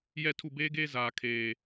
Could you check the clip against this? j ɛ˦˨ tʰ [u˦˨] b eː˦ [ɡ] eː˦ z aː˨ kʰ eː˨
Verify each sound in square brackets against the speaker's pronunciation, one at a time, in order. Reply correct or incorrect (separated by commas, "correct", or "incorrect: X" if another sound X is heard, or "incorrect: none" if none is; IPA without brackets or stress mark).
correct, correct